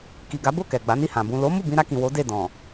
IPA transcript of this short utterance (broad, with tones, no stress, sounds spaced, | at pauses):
k i˨ ɡ a˨˦ b o˦˨ k ɛ˨ ɡ͡b a˨˦ n i˦˨ h ã˨ b ũ˨ l o˨˦ m u˦˨ b ĩ˧ ɾ a˧ k ĩ˨ w o˨˦ d e˦˨ d ɔ̃˨